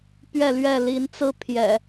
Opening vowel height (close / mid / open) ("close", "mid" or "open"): mid